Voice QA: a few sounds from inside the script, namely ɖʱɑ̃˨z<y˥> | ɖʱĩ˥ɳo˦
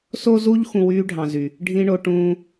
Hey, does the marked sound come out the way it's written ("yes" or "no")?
no